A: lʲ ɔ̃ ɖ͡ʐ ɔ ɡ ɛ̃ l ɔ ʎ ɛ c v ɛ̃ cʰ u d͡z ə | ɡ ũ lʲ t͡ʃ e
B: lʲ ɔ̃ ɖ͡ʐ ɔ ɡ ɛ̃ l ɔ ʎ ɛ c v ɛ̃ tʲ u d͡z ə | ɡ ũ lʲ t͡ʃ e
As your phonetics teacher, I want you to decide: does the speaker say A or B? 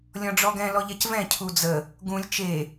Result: A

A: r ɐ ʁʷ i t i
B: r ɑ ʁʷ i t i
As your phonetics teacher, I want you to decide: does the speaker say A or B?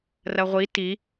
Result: A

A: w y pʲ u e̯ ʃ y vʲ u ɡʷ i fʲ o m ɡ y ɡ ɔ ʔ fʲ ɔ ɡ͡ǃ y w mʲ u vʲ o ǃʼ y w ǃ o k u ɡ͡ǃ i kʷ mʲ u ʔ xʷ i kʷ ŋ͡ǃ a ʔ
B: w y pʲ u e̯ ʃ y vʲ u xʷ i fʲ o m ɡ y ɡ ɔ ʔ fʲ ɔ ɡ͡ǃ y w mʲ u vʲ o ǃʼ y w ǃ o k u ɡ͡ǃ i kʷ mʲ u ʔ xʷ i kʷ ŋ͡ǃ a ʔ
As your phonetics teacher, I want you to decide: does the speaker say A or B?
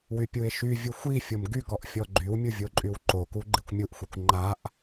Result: B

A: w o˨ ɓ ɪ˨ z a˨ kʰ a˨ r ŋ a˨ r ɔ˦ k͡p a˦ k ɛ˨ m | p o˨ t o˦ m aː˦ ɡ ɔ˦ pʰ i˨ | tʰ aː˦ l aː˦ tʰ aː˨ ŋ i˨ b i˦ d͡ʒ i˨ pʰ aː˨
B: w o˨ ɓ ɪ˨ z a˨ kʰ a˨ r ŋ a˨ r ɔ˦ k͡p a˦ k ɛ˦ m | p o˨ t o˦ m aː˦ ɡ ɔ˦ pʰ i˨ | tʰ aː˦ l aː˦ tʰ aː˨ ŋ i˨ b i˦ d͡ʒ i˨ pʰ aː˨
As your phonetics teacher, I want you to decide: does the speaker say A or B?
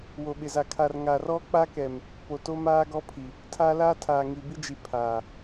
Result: A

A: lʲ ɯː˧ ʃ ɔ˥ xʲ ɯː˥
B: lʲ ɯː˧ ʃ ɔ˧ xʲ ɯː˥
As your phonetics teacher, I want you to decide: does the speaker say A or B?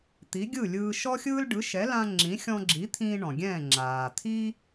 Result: A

